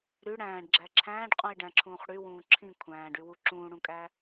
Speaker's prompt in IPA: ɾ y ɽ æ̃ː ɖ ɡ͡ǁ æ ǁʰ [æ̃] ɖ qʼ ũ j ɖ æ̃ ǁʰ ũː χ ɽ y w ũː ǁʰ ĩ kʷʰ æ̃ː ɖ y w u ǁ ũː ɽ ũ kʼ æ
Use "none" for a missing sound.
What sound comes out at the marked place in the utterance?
æ̃ː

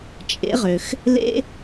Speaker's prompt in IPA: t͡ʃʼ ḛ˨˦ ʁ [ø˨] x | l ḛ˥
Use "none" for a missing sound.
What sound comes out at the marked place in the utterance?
ø˨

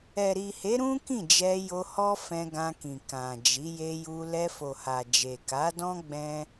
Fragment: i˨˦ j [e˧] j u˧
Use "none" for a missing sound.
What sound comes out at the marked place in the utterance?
e˧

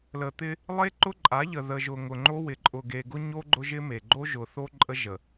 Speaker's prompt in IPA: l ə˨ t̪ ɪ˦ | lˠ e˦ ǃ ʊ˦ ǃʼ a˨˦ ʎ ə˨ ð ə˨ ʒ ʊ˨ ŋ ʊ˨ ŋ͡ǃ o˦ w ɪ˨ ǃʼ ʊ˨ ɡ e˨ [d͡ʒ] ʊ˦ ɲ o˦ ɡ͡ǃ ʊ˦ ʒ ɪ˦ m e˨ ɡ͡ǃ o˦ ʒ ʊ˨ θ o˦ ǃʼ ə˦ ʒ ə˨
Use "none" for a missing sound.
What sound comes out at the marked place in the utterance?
ɡ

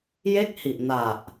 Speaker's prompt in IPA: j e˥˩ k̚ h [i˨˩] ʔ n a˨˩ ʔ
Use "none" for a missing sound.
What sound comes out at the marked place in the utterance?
i˨˩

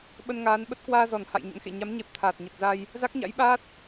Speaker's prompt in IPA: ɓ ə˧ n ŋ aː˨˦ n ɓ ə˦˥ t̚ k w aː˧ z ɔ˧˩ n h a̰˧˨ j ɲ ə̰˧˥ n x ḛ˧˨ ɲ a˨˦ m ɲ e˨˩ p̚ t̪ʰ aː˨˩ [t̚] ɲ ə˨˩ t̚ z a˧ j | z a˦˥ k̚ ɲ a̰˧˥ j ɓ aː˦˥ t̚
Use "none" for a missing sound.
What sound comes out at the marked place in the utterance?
t̚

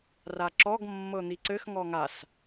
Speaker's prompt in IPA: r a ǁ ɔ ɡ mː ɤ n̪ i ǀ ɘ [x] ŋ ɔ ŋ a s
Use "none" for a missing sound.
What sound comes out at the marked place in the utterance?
x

